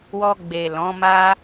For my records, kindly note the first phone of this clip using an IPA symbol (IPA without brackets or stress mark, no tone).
w